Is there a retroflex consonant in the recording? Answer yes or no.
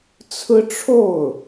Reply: yes